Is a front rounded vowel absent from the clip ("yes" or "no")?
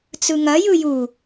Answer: yes